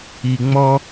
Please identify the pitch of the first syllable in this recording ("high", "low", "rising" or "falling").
low